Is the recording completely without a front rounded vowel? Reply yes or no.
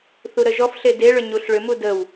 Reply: no